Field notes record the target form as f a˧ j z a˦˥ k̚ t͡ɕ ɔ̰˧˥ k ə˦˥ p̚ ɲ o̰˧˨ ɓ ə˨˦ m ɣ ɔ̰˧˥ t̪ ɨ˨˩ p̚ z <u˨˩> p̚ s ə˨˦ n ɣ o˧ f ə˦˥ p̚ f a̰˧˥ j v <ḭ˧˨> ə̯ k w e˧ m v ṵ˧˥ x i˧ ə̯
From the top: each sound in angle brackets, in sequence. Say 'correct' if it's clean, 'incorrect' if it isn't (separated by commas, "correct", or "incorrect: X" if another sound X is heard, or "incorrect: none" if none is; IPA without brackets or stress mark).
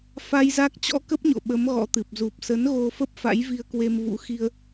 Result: correct, incorrect: i˧